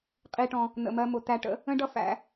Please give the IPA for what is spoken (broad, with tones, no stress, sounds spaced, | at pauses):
qʼ i˧ ʈ ɔ̃˧ | n̪ ə̰˨ m ɜ˧ m ʊ˨ t̪ æ˧ ʈ ə̰˦ | ə̃˦ ɖ ʌ˦ f æ̰˨˦